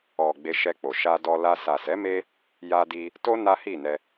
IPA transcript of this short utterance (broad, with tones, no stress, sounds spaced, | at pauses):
ɔ˨ ɡ͡b e˧ ʃ ɛ˧ k͡p o˨ ʃ a˧ d ɔ˧ l a˧ s a˨ s ɛ˨˦ m e˧ | j a˧ d i˧ | t o˦ n a˦ h i˦˨ n ɛ˧